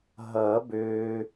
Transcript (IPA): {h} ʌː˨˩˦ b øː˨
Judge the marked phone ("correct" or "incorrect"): incorrect